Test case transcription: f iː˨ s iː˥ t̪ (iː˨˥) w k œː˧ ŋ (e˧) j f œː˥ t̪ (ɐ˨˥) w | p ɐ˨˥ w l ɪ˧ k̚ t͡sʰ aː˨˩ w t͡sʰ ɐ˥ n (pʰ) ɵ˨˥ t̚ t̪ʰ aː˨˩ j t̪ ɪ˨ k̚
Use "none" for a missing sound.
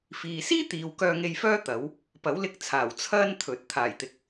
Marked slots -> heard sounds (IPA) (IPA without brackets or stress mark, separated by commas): iː˨˧, e˧, ɐ˨˥, t̪ʰ